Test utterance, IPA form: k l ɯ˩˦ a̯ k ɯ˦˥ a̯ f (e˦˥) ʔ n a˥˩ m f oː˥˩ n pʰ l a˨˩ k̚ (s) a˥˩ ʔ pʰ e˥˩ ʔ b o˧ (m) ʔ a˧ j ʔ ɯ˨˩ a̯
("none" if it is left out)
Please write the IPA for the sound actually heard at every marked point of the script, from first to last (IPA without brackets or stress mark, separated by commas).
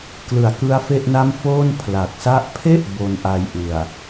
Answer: e˥˩, s, n